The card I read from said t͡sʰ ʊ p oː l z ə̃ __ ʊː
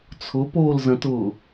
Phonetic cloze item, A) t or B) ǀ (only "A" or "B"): A